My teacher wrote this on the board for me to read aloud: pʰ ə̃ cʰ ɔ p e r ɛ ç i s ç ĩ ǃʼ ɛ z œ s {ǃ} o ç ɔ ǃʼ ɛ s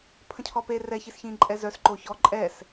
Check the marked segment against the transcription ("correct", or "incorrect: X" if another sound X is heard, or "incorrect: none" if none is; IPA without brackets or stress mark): correct